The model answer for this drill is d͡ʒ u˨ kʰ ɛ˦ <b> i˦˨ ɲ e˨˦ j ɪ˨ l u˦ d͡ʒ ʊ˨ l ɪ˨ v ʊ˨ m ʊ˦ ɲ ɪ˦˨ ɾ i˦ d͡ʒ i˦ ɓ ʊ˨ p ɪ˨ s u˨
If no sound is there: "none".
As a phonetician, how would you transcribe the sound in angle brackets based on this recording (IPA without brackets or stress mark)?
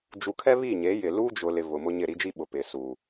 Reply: β